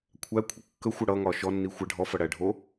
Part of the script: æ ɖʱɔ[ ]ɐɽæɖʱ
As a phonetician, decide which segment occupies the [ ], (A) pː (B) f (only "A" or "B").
B